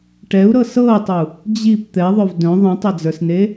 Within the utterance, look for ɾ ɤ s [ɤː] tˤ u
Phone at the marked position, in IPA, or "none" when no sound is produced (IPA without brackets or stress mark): ɤː